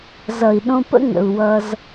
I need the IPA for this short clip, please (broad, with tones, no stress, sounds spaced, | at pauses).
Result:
z ʌ˨ i̯ ɗ õ˧ p ə̰˦ ŋ ə̰˨ u̯ w ʌ˧ z